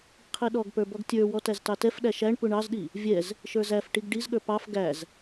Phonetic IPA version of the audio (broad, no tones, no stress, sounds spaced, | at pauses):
qʰ i ɗ ɔ ɡ p ə˞ b ɔ ɡ tʲ ə˞ w ɔ t æ z t ɑ t ɛ f ɗ æ ʃ æ ɳ p u ɳ ɑ z ɗ i | vʲ ɛ z | ʃ ə˞ z æ f ʈ i ɡ ɖ i z ɠ ə˞ p ɑ f ɡ æ z